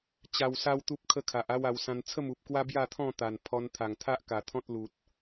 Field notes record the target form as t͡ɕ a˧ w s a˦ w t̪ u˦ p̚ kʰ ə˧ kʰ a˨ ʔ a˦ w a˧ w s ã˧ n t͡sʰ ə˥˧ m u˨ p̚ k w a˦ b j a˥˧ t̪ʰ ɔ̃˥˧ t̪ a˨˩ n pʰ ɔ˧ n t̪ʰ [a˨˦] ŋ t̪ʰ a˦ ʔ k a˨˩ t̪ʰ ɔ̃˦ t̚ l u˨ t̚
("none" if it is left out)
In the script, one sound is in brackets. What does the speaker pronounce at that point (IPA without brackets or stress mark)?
a˨˩